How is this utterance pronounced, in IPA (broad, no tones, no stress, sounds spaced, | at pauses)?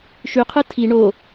ʃ y qʰ ɯ tʰ i ɳ o